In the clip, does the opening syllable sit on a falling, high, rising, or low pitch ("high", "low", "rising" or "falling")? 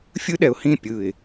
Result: high